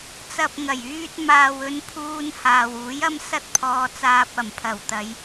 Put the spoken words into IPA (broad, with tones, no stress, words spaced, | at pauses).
t͡sɐ˨p̚ ŋɐ˨˩jyː˧t̚ maː˨wɵ˨˧n pʰuː˧nhaː˨wuː˨˥j ɐ˥m sɐ˥t̚pʰɔː˧t͡saː˧p̚ ɐ˨˩mpʰɐ˨˩wt̪ɐ˨˧j